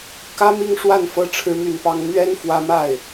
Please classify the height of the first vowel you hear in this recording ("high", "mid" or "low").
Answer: low